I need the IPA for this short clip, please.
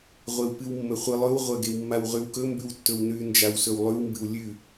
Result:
ʁʷ e w p ɨ w mː ɵ χʷ ɨ lˠ ɵ w ʁʷ ɐ ɡ e w mː a w ʁ ʉ w k ɵ m b ʉ w tː ɵ w n ʉ n d͡ʒ a w s ɵ w lˠ ʉ w m b ɨ w lʲ ʉ

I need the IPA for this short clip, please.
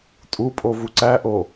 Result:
tʼ u pʼ o v u ǀ æ ʔ o

